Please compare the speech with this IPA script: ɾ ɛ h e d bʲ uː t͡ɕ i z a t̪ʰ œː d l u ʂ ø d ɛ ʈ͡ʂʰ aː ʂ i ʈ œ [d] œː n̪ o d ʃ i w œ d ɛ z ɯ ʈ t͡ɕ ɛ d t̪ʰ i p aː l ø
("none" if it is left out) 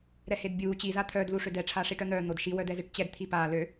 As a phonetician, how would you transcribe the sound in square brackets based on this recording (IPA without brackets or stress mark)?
n̪